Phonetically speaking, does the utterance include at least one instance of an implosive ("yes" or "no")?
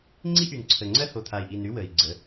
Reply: no